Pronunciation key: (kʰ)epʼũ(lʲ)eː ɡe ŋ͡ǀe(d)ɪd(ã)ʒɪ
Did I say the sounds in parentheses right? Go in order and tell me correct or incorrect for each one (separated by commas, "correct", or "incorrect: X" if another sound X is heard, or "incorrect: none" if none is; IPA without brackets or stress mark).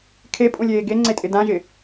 correct, correct, incorrect: tʼ, correct